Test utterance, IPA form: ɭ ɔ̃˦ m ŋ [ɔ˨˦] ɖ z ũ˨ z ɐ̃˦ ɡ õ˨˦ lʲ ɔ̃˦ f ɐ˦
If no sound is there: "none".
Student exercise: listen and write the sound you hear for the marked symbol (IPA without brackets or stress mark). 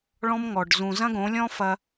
ɔ˨